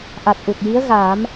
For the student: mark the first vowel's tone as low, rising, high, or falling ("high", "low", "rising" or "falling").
low